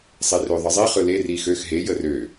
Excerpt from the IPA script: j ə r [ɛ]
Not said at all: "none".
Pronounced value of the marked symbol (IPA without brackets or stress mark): ø